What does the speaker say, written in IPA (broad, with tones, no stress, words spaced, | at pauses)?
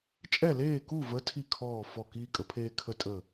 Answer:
t͡ʃʼɛ˥˩leː˥˩ku˥˩və˨˥ tʰi˥˩kʰɔː˥˩ fɔ˥˩kiː˥kʼə˨˥pʰeː˥ kʰə˥tʼə˥˩